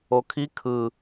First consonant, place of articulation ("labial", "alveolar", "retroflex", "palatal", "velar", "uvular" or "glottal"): velar